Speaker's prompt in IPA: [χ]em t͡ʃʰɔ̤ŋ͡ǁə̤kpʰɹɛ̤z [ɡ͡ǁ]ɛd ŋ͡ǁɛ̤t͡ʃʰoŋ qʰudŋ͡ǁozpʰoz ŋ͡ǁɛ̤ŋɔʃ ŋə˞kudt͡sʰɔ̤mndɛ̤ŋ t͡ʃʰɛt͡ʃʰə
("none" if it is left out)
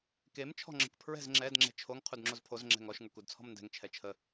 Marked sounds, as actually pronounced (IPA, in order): k, ŋ͡ǁ

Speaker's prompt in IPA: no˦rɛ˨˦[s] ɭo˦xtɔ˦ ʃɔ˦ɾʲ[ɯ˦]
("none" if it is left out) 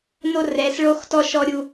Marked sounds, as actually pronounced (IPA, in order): s, u˦

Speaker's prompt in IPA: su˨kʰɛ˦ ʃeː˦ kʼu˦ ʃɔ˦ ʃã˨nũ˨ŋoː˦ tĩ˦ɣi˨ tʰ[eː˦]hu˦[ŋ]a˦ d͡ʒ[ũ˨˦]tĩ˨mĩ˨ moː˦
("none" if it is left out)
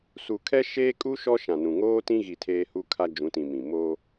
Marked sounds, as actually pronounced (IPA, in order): eː˦, kʰ, ũ˨˦

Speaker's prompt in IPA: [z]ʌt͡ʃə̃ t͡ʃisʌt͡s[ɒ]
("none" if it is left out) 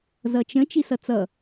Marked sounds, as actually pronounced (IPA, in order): z, ʌ

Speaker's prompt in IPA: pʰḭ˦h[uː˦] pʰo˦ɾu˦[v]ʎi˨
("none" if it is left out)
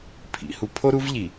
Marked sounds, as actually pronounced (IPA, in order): u˦, v

